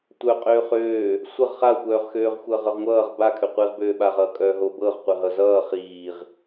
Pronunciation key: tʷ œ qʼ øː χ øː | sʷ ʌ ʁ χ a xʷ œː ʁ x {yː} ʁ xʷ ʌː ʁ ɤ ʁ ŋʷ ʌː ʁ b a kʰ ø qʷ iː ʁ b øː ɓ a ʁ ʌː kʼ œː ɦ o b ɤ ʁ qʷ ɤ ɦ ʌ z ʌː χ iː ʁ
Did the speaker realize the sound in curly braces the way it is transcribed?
no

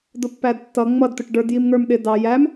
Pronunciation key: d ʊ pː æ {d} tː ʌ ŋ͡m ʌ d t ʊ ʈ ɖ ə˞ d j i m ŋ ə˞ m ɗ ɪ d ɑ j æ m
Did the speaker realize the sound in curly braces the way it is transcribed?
yes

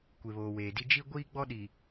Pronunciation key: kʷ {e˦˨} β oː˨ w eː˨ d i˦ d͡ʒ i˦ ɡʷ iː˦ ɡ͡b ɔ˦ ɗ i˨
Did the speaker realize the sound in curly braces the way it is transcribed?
no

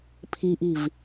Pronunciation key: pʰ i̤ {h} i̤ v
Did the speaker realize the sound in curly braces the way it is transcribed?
no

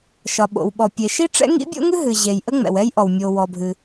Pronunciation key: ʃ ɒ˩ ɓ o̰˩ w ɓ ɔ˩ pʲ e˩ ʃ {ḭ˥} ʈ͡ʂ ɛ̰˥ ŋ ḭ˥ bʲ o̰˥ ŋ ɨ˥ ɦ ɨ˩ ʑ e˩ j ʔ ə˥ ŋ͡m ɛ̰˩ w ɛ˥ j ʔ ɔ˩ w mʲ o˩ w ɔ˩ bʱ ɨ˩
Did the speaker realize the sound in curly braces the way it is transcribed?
no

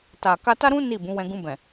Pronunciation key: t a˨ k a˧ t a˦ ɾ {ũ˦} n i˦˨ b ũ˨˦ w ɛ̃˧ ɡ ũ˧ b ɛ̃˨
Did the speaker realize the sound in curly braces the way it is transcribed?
yes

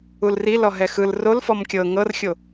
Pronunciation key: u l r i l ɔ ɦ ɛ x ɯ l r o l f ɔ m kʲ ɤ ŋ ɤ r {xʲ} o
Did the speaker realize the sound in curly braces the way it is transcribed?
yes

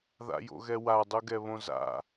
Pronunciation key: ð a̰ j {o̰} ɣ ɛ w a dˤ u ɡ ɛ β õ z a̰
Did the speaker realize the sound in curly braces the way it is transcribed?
yes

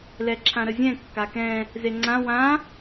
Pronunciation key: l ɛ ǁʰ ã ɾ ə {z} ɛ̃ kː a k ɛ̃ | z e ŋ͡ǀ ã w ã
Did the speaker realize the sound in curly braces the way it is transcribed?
no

